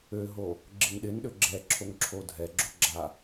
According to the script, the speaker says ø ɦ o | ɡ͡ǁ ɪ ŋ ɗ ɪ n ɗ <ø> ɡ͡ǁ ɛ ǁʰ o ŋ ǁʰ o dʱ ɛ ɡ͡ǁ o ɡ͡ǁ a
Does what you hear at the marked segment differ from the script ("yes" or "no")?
no